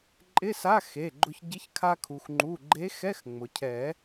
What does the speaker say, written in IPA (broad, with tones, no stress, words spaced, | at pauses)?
ǃʼɪ˧˥˧sa˧˥˧ xe˩˧˩ɡ͡ǃʊ˧ç ɟɪ˧˥çkʰa˧kʰu˩x ŋ͡ǃu˩˧˩ɡ͡ǃe˧˥xɛ˧˥˧x ŋ͡mʊ˩cʰɛ˨˩˦